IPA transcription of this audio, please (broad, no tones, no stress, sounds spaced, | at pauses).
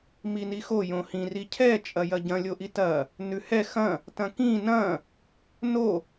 m i n i x o j õ h ĩ r i cʰ ɛ t͡ʃʼ ɐ j ɐ ɟ ɐ̃ lʲ o ʔ i t ɐ | n ʉ h ɛ x ɐ̃ | t ɐ̃ k ĩ n ɐ̃ | n o